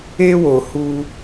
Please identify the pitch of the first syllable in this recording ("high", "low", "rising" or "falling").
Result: high